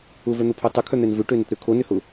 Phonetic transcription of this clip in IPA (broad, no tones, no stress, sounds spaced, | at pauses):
ʊ v œ n̪ ʊ pʰ o tˤ ʊ kʰ œ n̪ ɛ n v ø ʈ ø n ʏ t ɾ ø kʰ o n ʏ h ʊ